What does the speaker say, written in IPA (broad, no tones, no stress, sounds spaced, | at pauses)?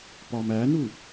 p ɒ m æ n u